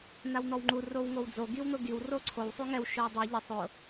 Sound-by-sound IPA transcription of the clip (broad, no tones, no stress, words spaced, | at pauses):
nawn̪ɔwŋ͡ǃu rowŋowd͡zo ɡiwn̪ʊɡiw roǀʰow sˤuŋɛw ʃowdˤi ʎɪ sˤʊ